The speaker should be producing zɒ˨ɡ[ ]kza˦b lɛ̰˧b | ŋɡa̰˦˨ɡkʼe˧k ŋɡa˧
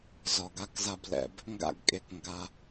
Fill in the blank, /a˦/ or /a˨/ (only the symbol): a˦